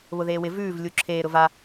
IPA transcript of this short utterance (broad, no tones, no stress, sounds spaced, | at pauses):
β ʊ ð eː w ɪ v ʉː v lʲ u ǁʰ eː ɾ ʊ v a